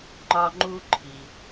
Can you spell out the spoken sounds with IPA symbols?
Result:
ŋ͡ǃ ɒ˥ ŋ͡ǃ u˥ ǃʰ i˩

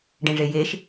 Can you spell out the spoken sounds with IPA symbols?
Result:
ɖ ẽ ʐ e j e ʃ

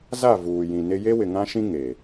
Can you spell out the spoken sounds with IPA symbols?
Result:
z a˦˨ v uː˨ j ĩ˨ n ɪ˦ j e˦ w ɪ˨ ŋ ã˦ ʃ ĩ˦ ŋ e˨

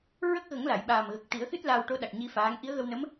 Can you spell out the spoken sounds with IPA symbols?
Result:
ɹ ə˦˥ k̚ ɣ ə˨˩˦ ŋ l a˨˩˨ j ɓ aː˨˩ m ɣ ə˨˩ k̚ t̪ i˨˩˦ ə̯ x ɨ˦˥ t̚ l a˧ w ʈ o˧˥ ɗ a˨˩ k̚ ɲ i˧ f aː˧˥ ŋ ʔ i˧˥ ə̯ ɣ ə˧ w n ə˧˥ m

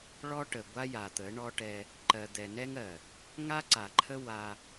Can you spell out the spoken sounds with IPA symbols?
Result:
ɭ ɔ˦ ʈ ə˨ ɡʷ a˦ j a˨ t̪ ə˨˦ ɳ ɔ˦ ʈ ɛ˦ | ǃ ɜ˨ d̪ ɛ˨ n ɛ˦ ŋ ɜ˨ | ŋ a˦ ǀ a˨ ǃʰ ə˦ w a˦

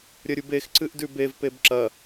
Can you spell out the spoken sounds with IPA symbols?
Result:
ɾʲ ɐ ɾʲ u b e x ǀ ɨ ʔ d ʉ b e v p e b ǁ ɐ

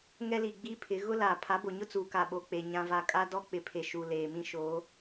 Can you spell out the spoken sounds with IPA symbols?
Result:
ŋ ɛ˦ l i˨ ɡ͡b i˦ pʰ ɪ˨˦ ɣ ʊ˦ l aː˨ pʰ a˨˦ b o˨ ɲ ʊ˦ t͡s uː˨ k a˨ ɓ o˨ k͡p e˨ ɲ ã˦ v a˦ kʼ a˦ d ɔ˦ k͡p ɪ˨ pʰ e˨ ʃ u˨ l eː˨ m ĩ˦ ʃ oː˨˦

